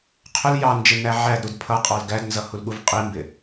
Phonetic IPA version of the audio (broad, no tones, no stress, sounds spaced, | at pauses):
qʰ ʊ l j ɑ n d͡ʒ ɪ n æ ʕ æ d ɾ u d pʰ ʌ qʼ ɑ l ɡ æ d n z ʌ h u l ɠ u v qʼ i m b ɪ